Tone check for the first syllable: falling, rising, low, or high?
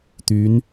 rising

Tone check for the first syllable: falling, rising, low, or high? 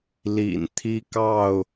low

